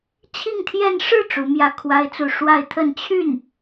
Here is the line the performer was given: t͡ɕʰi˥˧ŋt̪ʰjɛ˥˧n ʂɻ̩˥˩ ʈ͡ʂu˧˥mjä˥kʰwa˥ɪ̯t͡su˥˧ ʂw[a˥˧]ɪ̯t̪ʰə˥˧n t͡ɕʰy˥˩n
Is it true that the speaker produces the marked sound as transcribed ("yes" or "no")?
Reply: yes